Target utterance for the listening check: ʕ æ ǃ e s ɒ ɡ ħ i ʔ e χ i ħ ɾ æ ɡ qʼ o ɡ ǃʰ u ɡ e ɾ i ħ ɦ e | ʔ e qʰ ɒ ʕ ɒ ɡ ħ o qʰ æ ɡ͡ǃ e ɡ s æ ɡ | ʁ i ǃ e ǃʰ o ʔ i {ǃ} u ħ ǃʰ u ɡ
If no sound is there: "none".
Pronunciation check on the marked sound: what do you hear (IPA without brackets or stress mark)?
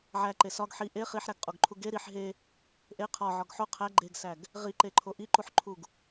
ǃ